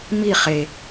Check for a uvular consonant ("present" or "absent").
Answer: present